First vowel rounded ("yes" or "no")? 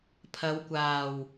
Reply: no